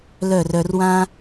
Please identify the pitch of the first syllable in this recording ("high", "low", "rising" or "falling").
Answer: falling